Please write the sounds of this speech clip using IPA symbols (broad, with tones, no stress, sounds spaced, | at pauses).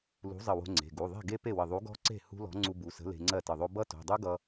l ṳ˨˥ zˤ ə˧˩ w o̤˧ ŋ͡ǀ e̤˩˧˩ ɡ u˩˧˩ ðˤ e̤˥˩ ɡ e˦˥ p e˥˩ w ə˧˩ ðˤ u˨˥ ɡ ɔ̤˦˥ ǀ e̤˥˩ h ṳ˦˥ l ɔ̤˨˥ ŋ͡ǀ u˧ b u˩˧˩ s ə̤˨˥ l e̤˧ ŋ͡ǀ ɜ˥˩ t ə˧˩ ðˤ o˦˥ b ʌ˦˥ t o̤˩˧˩ dˤ u˦˥ ɡ ʌ˧